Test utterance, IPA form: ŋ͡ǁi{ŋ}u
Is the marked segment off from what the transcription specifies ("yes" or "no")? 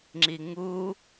no